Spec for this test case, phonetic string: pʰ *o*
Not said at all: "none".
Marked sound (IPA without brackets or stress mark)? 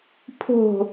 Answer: o̤